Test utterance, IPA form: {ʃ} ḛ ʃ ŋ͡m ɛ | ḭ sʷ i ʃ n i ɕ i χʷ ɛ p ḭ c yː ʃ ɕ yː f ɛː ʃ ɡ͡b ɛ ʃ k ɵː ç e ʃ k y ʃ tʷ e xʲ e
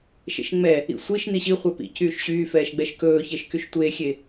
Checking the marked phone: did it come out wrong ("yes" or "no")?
no